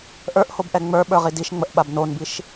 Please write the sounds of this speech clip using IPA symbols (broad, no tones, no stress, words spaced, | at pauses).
ʔə˞ʔhobʔɛ ŋ͡mə˞ɓə˞ʁi diʃŋ͡məʔɓab nonbiʃ